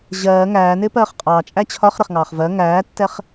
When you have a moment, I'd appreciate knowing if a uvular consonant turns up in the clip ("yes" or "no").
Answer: yes